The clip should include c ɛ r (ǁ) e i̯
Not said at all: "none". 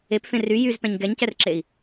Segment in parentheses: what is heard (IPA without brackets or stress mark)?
ǁ